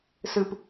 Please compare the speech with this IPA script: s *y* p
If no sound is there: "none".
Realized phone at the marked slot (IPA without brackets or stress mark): ɨ